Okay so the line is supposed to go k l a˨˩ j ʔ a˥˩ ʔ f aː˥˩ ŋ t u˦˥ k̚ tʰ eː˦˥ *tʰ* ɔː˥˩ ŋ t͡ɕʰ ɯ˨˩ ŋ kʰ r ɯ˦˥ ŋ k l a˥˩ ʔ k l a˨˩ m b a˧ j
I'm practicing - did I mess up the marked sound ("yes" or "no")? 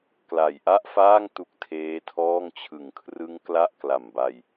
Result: no